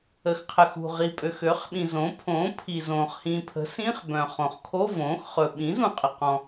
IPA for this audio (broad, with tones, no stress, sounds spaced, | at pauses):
ə˩ x qʰ ə˩ x ṳ˩ ʁ i˩ pʼ ø˩ x ø˩˥ χ ɓ ĩ˩ z õ˩˥ pʰ õː˩˥ pʰ i˩ z õː˩ χ h ĩː˩ pʰ ə̤˩˥ s ĩː˧˥˧ χ b œ̃˩ χ õ˩ χ kʰ o˧˥˧ v õː˩˥ x χ ɵ˩ ɓ ĩ˩˥ z ũ˩ qʼ ə˩ q ɔ̃˩